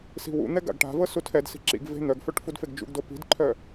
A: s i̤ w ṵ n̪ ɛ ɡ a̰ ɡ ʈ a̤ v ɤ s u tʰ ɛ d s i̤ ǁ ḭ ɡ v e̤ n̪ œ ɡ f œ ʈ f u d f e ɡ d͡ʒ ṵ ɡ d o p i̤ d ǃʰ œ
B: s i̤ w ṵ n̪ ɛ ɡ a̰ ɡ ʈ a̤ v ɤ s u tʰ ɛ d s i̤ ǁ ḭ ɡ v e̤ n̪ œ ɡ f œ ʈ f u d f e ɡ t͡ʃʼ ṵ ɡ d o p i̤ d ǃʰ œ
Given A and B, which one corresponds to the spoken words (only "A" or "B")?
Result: A